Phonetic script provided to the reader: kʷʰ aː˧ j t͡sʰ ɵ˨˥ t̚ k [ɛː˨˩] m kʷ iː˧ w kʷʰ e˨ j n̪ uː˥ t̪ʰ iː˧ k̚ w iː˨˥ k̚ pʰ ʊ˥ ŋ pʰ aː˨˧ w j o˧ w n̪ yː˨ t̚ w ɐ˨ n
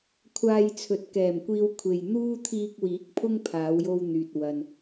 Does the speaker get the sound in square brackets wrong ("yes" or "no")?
no